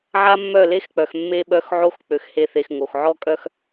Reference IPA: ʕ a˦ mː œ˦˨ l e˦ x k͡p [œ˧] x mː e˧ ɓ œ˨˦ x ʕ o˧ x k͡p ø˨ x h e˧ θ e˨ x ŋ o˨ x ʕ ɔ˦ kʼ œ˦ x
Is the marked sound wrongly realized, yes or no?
yes